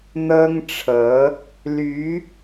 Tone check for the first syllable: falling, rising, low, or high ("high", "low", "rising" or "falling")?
high